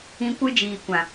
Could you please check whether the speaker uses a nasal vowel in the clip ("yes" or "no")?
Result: yes